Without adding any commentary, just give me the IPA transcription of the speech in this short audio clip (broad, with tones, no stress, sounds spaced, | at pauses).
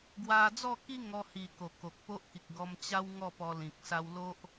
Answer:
ɡ w a˧ d͡z ɔ˥˧ k i˦ ŋ ɔ˧ h i˨˩ k o˨˩ k o˨ k̚ p o˦ ʔ k i˨ k̚ ɡ ɔ˧ m t͡ɕ a˦ w ŋ ɔ˥˧ p ɔ˧ l ĩ˨ k̚ s a˧ w l o˦ ʔ